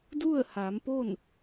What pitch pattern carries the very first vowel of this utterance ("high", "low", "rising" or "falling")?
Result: falling